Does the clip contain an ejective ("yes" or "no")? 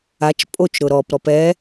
yes